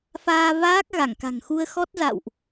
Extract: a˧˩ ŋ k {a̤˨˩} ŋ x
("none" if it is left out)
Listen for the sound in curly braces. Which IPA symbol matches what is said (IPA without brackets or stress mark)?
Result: a̤˨˩